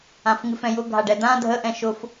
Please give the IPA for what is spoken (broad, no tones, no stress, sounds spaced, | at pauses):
ã f ŋ ɨ f ɛ̃ j ʊ ɡʱ a ɖ ɛ d̪ ã dʱ ə ʔ ɛ̃ ʃ ʊ f